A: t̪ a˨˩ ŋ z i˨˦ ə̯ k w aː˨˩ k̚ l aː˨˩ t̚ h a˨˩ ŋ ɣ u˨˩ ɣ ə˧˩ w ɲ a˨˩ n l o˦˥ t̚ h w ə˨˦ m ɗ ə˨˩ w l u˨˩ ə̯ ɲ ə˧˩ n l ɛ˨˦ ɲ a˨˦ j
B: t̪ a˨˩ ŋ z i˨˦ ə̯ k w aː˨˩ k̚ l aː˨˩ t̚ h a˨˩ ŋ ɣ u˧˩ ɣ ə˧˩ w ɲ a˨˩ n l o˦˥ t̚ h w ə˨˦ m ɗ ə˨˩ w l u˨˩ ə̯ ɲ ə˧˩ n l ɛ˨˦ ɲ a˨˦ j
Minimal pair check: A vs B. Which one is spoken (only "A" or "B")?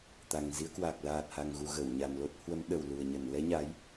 A